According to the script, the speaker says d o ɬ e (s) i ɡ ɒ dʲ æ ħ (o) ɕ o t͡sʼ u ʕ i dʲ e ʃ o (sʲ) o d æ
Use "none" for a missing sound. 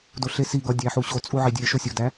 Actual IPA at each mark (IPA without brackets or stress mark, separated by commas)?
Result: s, u, sʲ